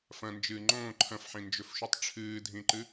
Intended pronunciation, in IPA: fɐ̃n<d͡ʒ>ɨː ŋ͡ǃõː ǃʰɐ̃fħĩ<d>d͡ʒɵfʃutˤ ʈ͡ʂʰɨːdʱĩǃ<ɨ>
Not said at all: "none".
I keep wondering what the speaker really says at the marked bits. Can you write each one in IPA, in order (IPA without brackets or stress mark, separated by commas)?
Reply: d͡ʒ, n, ɨ